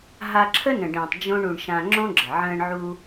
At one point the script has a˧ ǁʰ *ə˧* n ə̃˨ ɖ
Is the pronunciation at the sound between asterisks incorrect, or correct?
incorrect